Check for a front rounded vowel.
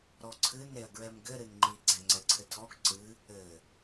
absent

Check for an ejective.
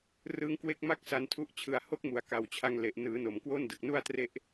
absent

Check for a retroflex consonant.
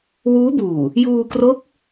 absent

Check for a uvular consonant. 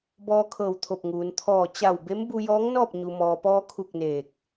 absent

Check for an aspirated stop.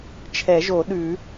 present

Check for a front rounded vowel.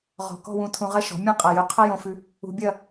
present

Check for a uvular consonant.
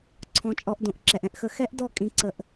absent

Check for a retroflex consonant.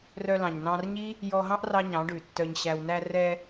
present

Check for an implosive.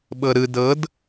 present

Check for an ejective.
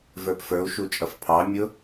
present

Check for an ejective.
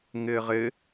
absent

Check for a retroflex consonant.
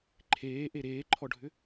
present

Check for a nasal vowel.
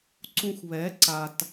present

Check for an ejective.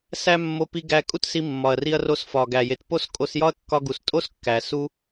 present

